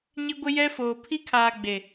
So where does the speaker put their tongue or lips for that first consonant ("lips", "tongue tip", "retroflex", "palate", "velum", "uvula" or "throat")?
palate